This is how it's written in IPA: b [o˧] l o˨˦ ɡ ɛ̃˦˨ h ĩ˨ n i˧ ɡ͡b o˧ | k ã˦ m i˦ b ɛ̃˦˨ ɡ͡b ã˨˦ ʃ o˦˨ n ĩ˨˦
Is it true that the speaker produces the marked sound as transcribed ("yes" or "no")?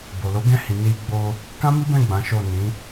no